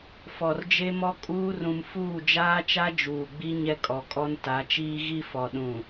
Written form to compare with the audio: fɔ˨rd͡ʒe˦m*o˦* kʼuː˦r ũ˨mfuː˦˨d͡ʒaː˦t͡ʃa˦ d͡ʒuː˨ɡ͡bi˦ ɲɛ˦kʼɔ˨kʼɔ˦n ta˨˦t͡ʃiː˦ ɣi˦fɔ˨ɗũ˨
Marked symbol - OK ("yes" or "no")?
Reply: no